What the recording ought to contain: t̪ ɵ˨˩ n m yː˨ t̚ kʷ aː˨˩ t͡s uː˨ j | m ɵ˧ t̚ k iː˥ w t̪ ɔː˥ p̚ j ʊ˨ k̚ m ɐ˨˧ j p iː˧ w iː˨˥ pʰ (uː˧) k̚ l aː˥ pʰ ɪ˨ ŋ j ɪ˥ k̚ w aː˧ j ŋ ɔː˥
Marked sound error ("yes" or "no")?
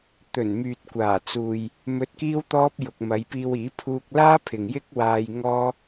no